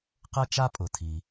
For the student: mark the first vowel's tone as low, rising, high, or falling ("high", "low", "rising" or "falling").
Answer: high